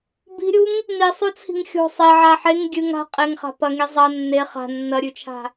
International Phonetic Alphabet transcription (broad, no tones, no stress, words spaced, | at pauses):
bi̤ɾʲuŋ | nisˤut͡sʰi̤ŋ xʲo̤ sˤiʕa ħeŋ ɡʲɨŋ a̤ qʼeŋχa̤ pɐŋi zˤɐ nːe χa̤ nːɐɾʲʉt͡ʃʰa̤